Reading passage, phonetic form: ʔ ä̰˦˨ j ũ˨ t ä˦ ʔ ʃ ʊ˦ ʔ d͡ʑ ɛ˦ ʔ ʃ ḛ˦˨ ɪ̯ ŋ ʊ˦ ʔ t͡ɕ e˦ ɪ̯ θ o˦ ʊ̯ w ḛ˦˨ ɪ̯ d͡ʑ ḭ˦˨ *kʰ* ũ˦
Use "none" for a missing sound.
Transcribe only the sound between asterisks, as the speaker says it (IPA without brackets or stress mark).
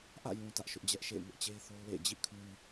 kʰ